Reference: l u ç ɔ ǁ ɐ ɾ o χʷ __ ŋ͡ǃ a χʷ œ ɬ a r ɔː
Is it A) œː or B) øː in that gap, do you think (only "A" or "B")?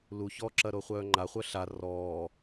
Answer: A